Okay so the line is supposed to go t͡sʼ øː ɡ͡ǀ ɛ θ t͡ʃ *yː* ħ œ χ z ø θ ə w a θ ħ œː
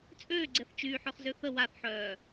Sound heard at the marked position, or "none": yː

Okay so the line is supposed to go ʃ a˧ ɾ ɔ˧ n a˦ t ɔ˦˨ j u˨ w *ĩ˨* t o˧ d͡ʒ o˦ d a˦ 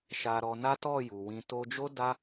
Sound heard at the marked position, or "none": ĩ˧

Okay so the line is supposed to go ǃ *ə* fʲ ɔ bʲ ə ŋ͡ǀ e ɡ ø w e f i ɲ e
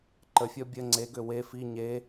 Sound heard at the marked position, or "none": ə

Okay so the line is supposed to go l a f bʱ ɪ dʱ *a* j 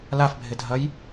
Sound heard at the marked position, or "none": ɐ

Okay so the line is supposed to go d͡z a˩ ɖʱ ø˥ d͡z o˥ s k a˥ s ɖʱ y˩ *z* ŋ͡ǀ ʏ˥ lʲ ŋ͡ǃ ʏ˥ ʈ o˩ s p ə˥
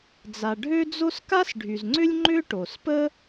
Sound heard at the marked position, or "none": z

